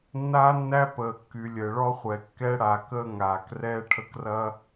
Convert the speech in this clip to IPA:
nːaː˦nːæ˦ pəː˨kːyː˨lʲəː˨ɭɔ˦ χʷɛ˨kːɛ˦ɽa˨ kəː˦ŋaː˨krɛː˦ ʈʰə˦krɐ˦

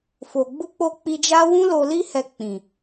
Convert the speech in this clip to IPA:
fo˨ɡ͡bu˧k͡po˧ k͡pi˧d͡ʒa˦wũ˦ lo˧li˦hɛ˧k͡pĩ˨

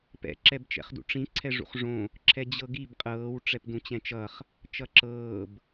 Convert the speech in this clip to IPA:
pɛ̰ ǁɛbt͡ʃɛ̰χdṵʈ͡ʂĩ ǀʰɛʐṵχʐõ | ǁʰɛd͡ʑɤɡib qʼɤːw ʈ͡ʂɛpdũt͡ɕɛ̃t͡ʃʌχ | t͡ʃʌǁɤːb

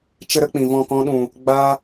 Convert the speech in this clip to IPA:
t͡ʃə˦ɾə˦k͡pĩ˨vɔ̃˦˨ kɔ̃˧ɗũ˨ | ɡ͡ba˦

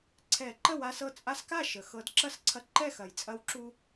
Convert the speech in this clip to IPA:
ǀʰɛ˨˩˦ǃə˥˩wa˧sɤ˧ t͡sʼa˧˥ska˥˩ʃə˩ xɤ˨˩˦dǁɐ˥˩sǀʰɐ˧ ǃɛ˥˩xɐ˩jt͡sʼɐ˧˥wǁu˧

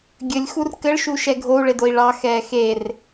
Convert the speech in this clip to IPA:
ɡʲɘlʲxur kɘɭʃu ʃɛɡʱou̯ɭed oi̯ɭɑxɛː xer

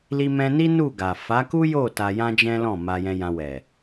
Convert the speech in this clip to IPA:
li˧mɛ̃˧ni˦ nu˦˨ɡa˨ fa˨˦ku˦jo˦˨ ta˧jã˦d͡ʒɛ̃˦lɔ̃˦˨ ma˧jɛ̃˧jã˧ wɛ˨

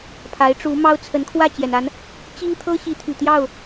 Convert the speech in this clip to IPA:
pʰa˨˦ɪ̯ʈ͡ʂu˨˦mɑ˦ʊ̯ t͡sʰə˨˦nkʰwä˥˨t͡ɕjɛ˩na˨˦n | t͡ɕi˦ŋ t̪ʰɤ˦ɕi˨˦t̪ʰy˨˩ t̪jɑ˥˨ʊ̯

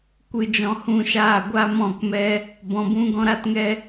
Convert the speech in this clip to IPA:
kʷɨ˧d͡ʒɔ̃˧hũ˦˨ʃaː˦˨ ɡʷa˦mɔ̃˦˨kmɛ˦ | bɔ̃˧bũ˦ ɡɔ̃˦ɾa˦tŋɛ˦

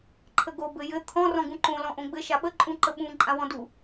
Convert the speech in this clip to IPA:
ǃʰəɡo bɘjɘ t̪ʰɔ̃ rɔ̃ɡũǃõ lɔ̃ʔõɡ͡bɘ ʃaɓə ǃʼũǃəɓũ ǃʼãwɔ̃du

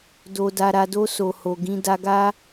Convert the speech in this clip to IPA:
do˨da˨ ɾa˨do˧ so˨ho˨ɡĩ˨˦ da˧ɡa˦

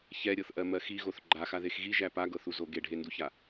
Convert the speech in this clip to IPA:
çɛɾʲɤθʔɜmɜ xiɣoθ ɡ͡ǃaxaðex ɣiʒæ paɡɤθuzo ɡeɖʱenduça

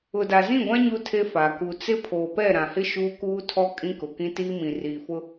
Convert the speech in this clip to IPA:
ʊ˨da˨zĩ˦˨ɡʷã˦ ɲu˦tʰe˦fa˨ ku˨t͡sɪ˦ pʰoː˨pɛ˦˨ɾã˨hɪ˦ ʃuː˦kuː˦tʰɔ˦ kʼĩ˦kʊ˨kĩ˦ tiː˦mĩ˨ riː˨fʊ˦

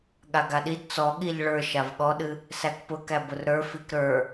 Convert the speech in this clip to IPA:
ɠaɡaɗid t͡sɔɠiʎ ɭə˞ ʃavɠɔɗɨ | sækpʊkæ bʊrɾə˞ fikɾə˞

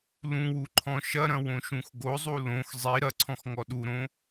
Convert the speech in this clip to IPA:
lũwu ǃʰɔ̃ʃɐɾɐ̃ wõʃũxɡozˤu lõx zˤi ɾɐǀʰɔ̃x ŋɔɗuɾõ

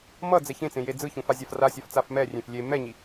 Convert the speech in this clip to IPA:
mʌd͡zɛ çẽt͡sẽje d͡zɯçũfazʲaf rasʲaft͡saf mɛrʲẽf lʲe mɛɲi

